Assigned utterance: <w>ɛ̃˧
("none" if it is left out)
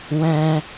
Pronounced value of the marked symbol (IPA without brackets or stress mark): w